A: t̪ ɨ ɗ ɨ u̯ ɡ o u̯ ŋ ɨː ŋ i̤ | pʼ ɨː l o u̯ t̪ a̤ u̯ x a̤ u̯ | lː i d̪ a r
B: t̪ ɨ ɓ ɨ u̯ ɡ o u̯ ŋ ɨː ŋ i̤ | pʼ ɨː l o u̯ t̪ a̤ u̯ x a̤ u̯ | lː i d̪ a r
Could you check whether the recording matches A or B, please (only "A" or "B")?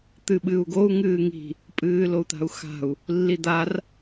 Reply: B